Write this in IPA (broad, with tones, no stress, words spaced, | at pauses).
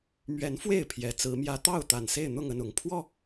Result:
mɥɛ˨˦nfwe˥˨ɪ̯ pʰjɛ˨˩t͡sɹ̩˨˦mjä˦ t̪ɑ˥˨ʊ̯ t̪a˨˩nse˥˨ɪ̯n̪ʊ˥˨ŋ ə˥˨nʊ˨˩ŋ pʰwɔ˥˨